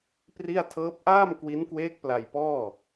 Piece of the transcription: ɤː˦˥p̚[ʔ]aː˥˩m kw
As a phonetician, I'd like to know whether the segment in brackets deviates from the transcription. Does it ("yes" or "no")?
no